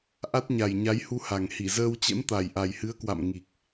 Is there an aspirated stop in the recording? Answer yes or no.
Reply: no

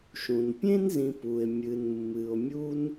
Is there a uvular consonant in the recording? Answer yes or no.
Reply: no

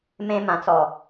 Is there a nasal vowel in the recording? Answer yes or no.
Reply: yes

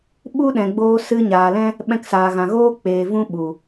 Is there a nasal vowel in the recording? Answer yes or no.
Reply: yes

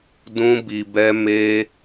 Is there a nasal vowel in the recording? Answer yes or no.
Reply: yes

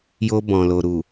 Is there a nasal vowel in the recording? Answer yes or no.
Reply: yes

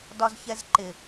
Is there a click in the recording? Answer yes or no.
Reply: yes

